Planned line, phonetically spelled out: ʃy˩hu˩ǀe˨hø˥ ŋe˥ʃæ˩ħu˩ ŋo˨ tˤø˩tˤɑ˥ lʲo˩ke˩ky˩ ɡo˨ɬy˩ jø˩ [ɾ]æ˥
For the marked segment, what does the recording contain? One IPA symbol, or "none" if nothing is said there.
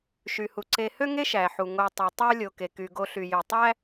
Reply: tˤ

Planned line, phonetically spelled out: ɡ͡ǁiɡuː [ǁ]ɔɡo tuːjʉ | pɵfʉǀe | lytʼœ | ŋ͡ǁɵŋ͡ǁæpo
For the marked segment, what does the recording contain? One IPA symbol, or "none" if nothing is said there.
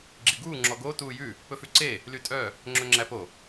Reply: ŋ͡ǁ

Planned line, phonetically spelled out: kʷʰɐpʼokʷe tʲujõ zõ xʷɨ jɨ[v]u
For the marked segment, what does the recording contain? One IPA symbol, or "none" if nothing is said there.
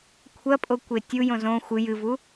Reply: v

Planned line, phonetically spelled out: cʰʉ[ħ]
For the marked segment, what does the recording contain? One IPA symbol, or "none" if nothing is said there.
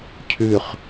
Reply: χ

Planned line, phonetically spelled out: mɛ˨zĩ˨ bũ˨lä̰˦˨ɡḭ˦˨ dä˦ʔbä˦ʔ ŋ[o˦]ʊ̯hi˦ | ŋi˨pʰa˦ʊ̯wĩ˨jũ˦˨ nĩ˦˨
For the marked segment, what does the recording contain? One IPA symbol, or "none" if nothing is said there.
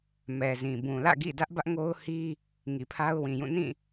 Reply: o˦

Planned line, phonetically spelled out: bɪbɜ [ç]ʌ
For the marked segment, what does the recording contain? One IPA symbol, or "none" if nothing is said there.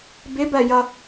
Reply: j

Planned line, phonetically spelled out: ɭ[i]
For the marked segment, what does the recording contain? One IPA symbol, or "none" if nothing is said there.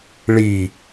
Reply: i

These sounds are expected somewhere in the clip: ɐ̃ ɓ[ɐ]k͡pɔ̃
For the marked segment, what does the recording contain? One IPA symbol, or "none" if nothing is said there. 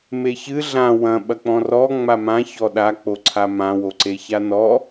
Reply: ɐ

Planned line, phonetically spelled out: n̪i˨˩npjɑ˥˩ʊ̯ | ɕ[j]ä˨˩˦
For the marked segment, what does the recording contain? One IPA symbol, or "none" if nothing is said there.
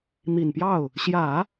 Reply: j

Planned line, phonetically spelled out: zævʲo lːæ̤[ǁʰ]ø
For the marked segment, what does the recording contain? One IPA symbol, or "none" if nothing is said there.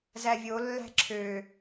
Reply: ǁʰ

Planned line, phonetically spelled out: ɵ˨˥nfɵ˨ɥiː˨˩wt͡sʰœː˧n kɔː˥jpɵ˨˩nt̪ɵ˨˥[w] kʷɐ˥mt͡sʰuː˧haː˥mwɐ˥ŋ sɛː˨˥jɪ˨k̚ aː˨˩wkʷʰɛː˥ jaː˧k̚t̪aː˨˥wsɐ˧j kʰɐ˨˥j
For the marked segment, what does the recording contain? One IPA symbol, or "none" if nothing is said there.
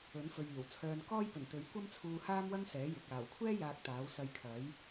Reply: ɥ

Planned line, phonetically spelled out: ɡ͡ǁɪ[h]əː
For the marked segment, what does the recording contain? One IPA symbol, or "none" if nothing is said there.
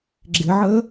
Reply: ʕ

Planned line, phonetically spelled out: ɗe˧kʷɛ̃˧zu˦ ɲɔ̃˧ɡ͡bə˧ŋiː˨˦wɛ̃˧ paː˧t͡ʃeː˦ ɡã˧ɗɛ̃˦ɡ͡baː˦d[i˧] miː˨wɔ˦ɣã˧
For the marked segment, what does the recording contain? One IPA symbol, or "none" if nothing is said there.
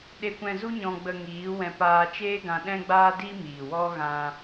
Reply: i˦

